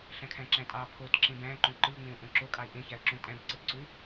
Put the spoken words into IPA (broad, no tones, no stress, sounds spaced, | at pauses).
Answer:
ɬ æ̃ kʰ æ̃ ǁ æ̃ tʼ ɑ pʰ o t ǁ ẽ b æ̃ ǃ õ ǃ ɯ ʊ̯ ŋ͡m ẽ ʊ̯ ʔ õ ǁ o kʼ ɑ ɪ̯ ʔ ẽ ç æ ə̯ ǁ ũ tʼ æ̃ b ǀ ɯ t ǀ u ɪ̯